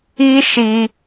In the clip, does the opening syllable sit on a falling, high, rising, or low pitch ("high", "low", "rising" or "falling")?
high